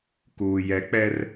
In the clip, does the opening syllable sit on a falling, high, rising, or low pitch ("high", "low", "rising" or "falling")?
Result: low